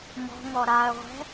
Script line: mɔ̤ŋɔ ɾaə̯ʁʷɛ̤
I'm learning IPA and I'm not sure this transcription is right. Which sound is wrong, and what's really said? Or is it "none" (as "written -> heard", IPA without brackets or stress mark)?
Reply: none